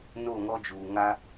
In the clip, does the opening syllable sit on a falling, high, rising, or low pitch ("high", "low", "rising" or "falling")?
falling